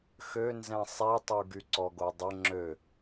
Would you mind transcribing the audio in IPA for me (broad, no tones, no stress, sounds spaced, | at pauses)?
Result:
x ø n z ɛ̃ sˤ i tˤ u ɡ y ǀ ɔ ɡ o dˤ ə ŋ͡ǁ ø